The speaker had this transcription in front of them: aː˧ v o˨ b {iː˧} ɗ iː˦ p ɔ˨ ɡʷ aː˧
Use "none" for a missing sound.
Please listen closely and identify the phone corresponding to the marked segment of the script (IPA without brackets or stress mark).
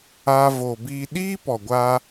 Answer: iː˧